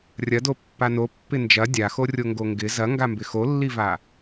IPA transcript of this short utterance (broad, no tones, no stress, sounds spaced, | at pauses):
rʲ ɐ d o pː a n o pː ɪ n d͡ʒ ɐ dʲ a x o rʲ o ŋ ɡ o ŋ ɡ ɪ z ɐ ŋ ɡ a m b ɪ x o lː i v a